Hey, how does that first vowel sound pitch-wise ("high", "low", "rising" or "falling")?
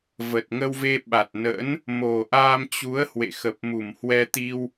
low